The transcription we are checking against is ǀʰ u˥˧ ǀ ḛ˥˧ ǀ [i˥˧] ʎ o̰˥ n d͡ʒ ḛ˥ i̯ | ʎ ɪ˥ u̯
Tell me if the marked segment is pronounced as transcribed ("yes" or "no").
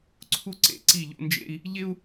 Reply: yes